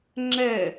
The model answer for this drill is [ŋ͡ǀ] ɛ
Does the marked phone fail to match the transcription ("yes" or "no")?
yes